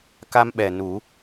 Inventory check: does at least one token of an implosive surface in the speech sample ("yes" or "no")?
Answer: yes